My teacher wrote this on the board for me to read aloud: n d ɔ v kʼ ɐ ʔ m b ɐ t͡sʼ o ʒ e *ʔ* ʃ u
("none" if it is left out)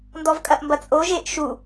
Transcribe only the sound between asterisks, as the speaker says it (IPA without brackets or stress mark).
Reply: ʔ